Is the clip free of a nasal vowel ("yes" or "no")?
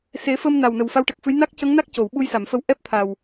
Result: yes